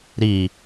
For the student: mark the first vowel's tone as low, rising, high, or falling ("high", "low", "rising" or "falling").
low